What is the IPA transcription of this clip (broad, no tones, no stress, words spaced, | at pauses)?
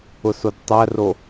ʊsodtˤæro